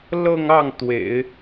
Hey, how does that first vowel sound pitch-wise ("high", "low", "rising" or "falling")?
falling